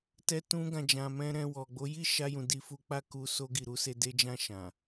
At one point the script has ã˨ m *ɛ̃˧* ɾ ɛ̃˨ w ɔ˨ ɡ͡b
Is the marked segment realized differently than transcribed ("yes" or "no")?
no